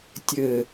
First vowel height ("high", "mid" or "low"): mid